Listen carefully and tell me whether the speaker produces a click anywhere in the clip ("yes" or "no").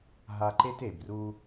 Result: yes